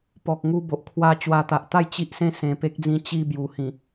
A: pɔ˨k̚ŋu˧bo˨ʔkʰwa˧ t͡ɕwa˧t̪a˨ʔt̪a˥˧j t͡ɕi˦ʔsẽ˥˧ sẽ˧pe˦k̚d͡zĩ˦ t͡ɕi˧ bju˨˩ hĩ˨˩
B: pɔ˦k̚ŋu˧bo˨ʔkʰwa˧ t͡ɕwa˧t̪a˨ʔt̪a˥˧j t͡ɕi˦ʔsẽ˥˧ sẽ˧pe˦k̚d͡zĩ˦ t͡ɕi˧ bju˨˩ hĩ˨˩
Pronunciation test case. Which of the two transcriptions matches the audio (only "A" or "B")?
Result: A